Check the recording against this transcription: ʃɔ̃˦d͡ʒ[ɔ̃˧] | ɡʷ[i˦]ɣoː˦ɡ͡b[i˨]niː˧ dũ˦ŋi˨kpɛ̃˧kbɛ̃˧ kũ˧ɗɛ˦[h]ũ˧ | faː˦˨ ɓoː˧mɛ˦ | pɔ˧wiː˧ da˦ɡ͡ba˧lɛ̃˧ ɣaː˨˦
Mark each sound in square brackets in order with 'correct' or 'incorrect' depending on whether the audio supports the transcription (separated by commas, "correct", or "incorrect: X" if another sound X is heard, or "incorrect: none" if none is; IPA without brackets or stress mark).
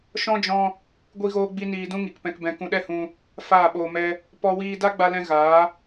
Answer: correct, correct, incorrect: i˦, correct